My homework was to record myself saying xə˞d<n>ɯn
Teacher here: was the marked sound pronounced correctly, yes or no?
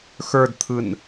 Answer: no